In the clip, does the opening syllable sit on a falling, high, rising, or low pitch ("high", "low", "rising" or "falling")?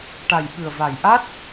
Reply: low